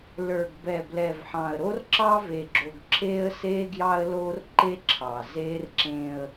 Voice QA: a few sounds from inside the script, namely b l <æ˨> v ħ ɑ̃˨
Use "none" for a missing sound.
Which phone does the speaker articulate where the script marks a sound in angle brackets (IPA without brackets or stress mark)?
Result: ɛ˨